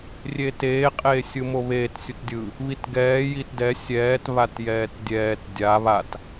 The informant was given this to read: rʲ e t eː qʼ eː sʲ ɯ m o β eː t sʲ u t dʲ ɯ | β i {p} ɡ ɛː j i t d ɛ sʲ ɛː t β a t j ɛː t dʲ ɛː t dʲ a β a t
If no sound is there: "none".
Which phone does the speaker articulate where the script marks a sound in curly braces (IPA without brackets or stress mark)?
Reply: t